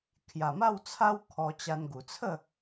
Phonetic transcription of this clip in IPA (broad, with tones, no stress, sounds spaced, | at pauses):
kʰ j a˨˩ m a˥˧ w t͡sʰ a˦ w kʰ ɔ˧ t͡ɕ a˧ n ɡ u˨˩ t͡sʰ ə˥˧